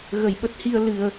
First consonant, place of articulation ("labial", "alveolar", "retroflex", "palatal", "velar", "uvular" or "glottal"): velar